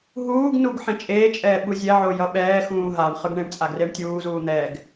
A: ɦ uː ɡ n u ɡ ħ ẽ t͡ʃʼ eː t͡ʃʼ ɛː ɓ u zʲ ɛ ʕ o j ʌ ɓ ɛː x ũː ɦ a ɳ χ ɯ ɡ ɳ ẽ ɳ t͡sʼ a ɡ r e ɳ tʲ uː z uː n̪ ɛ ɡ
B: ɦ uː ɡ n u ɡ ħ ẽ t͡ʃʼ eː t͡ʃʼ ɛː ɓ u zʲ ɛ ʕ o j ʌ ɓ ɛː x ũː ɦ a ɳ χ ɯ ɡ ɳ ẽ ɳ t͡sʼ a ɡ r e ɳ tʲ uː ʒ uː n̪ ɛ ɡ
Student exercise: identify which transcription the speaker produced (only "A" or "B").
A